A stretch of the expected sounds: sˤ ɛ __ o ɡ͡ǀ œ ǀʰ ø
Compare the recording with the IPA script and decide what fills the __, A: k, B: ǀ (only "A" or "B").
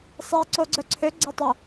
B